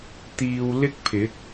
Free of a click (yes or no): yes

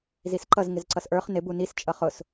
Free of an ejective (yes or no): no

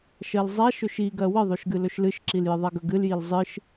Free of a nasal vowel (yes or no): yes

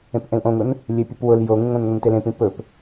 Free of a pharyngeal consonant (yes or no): yes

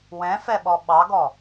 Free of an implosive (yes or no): no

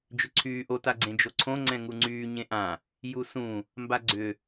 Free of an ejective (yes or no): yes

